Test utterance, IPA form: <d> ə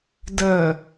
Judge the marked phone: correct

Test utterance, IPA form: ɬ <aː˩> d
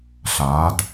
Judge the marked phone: incorrect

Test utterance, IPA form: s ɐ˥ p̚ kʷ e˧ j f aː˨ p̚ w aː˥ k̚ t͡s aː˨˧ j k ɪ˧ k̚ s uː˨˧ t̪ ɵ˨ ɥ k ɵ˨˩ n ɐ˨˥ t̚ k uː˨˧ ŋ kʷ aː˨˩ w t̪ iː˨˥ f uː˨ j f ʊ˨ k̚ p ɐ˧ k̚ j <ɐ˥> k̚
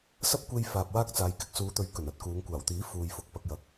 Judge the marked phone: incorrect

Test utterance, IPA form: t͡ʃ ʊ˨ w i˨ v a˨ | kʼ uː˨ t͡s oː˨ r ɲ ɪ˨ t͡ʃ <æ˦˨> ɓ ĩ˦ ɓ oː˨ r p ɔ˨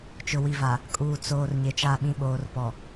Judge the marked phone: incorrect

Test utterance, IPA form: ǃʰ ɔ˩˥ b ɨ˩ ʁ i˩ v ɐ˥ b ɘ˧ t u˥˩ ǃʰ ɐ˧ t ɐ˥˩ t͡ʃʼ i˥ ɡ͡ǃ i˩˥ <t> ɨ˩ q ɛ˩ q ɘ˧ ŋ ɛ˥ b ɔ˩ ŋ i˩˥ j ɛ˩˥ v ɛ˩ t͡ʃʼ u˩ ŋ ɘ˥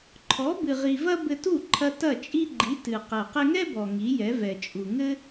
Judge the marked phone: correct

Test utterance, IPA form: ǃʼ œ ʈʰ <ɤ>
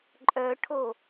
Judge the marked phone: incorrect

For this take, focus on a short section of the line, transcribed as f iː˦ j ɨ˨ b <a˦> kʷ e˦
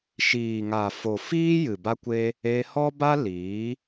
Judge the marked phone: correct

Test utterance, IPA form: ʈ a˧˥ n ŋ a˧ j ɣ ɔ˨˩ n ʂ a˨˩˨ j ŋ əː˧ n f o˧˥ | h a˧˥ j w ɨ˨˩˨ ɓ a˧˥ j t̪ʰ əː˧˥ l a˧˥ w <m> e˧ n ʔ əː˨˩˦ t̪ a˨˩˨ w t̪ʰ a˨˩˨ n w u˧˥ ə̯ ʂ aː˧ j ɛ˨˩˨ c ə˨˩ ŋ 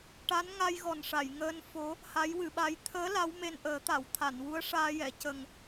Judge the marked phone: correct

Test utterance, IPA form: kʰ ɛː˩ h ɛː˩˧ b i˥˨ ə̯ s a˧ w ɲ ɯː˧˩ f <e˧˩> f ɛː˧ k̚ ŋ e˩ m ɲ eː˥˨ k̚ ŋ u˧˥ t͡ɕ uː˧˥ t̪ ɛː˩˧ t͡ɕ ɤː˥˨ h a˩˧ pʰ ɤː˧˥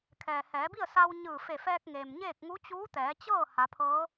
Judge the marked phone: correct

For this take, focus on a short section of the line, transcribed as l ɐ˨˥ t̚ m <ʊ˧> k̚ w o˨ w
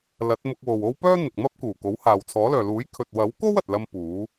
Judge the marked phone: correct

